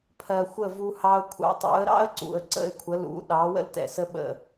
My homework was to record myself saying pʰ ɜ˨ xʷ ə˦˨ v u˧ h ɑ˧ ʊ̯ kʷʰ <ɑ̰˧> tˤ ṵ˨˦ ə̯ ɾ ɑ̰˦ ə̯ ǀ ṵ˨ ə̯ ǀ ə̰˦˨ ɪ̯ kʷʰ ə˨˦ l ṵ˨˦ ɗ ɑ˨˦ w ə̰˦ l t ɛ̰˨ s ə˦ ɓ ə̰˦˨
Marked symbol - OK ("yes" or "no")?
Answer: yes